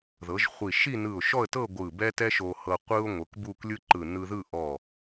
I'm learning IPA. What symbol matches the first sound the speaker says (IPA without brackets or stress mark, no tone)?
ð